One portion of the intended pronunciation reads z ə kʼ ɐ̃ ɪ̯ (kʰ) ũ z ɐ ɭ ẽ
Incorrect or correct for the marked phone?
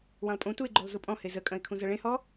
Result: correct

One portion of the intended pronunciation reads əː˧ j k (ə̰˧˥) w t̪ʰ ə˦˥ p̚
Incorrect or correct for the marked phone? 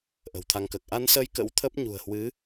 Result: correct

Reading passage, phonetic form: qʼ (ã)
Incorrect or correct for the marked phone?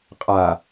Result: incorrect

